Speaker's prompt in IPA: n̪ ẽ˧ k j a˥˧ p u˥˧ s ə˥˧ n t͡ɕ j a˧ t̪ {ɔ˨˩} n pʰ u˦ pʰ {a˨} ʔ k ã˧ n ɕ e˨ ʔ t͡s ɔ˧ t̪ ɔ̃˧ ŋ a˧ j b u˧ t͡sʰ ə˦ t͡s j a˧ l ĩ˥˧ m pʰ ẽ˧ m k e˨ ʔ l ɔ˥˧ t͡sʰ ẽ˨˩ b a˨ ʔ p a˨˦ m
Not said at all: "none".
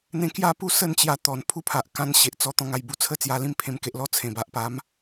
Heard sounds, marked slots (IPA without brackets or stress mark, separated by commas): ɔ˨˩, a˨